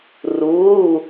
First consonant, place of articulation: alveolar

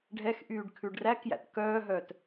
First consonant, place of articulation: retroflex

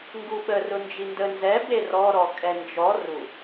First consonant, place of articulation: velar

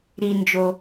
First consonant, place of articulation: alveolar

